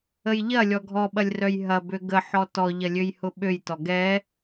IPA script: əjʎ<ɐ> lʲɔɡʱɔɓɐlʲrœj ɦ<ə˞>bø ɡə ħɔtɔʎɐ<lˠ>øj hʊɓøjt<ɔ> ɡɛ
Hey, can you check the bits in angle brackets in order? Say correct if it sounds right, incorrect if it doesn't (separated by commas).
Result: correct, incorrect, incorrect, correct